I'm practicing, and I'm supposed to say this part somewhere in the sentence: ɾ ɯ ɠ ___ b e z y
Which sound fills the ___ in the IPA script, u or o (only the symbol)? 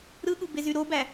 u